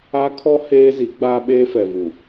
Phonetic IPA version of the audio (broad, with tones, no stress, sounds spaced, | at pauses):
a˦ kʰ ɔ˦ h eː˦ z i˨˦ ɡ͡b aː˦ ɓ eː˦ f ɛ˨ v u˨